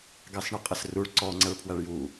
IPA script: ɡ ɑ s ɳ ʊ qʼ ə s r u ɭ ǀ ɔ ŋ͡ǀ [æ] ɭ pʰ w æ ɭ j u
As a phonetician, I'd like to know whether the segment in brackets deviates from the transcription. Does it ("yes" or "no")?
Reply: no